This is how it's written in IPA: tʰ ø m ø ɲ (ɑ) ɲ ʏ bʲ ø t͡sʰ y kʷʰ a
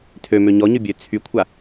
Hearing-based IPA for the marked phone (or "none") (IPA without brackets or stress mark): ɔ